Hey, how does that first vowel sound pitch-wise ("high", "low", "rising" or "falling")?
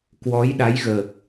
rising